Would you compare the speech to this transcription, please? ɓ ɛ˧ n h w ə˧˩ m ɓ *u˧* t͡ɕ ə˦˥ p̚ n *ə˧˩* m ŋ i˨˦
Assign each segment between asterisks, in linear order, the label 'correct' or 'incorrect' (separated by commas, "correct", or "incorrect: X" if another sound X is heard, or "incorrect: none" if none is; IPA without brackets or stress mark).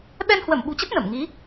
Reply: incorrect: ṳ˨˩, correct